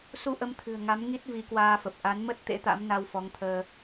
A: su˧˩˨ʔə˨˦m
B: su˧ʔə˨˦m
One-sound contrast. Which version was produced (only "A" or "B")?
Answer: B